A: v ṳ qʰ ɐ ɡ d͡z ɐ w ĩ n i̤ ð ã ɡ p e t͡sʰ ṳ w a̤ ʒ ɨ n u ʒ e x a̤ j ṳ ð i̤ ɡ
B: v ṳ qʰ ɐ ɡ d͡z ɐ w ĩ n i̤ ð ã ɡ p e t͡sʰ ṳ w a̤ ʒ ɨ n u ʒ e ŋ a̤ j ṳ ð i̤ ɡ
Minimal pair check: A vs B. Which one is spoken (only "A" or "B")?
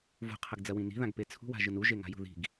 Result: B